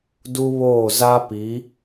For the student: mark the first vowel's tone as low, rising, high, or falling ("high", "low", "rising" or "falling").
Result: high